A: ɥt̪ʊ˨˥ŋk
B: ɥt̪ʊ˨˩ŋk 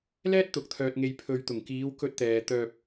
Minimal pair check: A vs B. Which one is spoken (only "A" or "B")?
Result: B